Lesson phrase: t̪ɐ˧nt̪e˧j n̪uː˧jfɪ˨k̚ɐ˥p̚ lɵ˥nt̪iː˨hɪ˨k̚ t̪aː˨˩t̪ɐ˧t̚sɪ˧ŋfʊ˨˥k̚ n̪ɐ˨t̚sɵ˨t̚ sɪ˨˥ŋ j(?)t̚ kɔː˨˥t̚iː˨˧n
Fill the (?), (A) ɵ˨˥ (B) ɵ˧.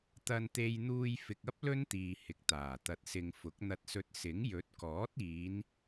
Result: A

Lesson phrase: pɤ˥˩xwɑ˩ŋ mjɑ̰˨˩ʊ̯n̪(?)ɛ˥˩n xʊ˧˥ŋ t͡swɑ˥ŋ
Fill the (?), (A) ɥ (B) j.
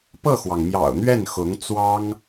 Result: A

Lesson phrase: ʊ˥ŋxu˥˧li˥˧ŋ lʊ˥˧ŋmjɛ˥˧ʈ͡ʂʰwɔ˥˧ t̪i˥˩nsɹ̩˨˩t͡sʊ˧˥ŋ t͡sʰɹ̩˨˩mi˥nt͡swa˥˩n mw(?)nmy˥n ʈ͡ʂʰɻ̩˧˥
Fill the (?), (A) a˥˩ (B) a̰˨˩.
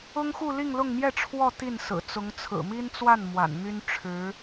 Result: B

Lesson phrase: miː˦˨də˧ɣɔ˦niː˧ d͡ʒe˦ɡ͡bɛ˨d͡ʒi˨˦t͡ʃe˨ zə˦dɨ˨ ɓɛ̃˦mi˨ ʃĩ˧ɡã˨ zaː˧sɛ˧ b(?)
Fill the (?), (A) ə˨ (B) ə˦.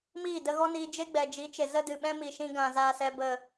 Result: A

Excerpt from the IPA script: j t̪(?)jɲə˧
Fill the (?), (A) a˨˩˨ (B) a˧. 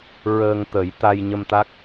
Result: B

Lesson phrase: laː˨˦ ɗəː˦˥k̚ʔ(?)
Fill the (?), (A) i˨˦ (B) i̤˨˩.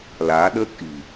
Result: B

